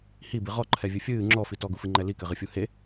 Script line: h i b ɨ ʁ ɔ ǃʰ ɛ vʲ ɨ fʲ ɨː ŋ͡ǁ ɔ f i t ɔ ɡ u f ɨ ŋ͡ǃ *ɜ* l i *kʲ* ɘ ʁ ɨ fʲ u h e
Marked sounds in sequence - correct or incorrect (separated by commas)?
incorrect, incorrect